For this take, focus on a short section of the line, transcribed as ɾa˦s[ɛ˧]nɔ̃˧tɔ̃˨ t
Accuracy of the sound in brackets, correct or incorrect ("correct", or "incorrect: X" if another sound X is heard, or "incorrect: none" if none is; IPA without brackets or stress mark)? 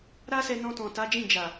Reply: correct